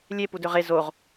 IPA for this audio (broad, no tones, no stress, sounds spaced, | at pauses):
lʲ e p u d ø ʁ e z o ʁ